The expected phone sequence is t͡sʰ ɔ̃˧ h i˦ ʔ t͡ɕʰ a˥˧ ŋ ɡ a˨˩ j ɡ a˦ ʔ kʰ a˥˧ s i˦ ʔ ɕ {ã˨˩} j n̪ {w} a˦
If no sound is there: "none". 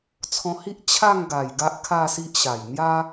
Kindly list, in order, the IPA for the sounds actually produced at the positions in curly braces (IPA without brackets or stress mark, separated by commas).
a˨˩, j